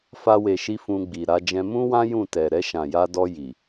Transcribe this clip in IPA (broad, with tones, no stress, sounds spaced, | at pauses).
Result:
f a˧ w e˨ ʃ i˧ f ũ˧ ɡ͡b i˨ ɾ a˧ d͡ʒ ɛ̃˧ m ũ˦ w ã˦ j ũ˦˨ t ɛ˨ ɾ ɛ˧ ʃ ã˨ j a˧ d ɔ˧ j i˨